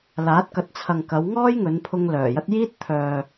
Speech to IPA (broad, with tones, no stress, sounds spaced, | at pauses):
l aː˨˥ t̚ k ɐ˨ t̚ t͡sʰ ɐ˨ ŋ k ɐ˨˧ w ŋ ɔː˥ j ŋ ɵ˨˧ n pʰ ʊ˧ ŋ l œː˨˩ j ɐ˥ t̚ j iː˥ t̚ t̪ʰ œː˨